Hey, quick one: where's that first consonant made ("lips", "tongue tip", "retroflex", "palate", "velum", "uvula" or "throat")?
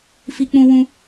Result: lips